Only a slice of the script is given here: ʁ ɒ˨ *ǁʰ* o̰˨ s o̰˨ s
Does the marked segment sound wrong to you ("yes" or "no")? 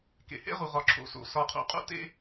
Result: no